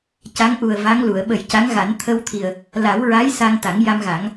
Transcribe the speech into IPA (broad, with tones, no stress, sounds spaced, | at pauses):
c a˧˥ ŋ ʔ u˨˩ ə̯ v a˧˥ ŋ l u˨˩˨ ə̯ ɓ ə˨˩˦ j c a˧˥ ŋ ɣ a˨˩˦ n t̪ʰ ə˧ w t̪ʰ i˨˩ ə̯ | l a˨˩˦ w ɹ a˧˥ j s a˧ ŋ t̪ a˨˩˦ ŋ j a˧ m ɣ a˨˩˦ ŋ